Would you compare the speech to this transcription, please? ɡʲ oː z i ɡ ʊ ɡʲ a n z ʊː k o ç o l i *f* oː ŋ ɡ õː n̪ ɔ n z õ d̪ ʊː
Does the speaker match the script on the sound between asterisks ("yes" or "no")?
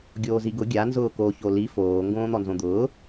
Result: yes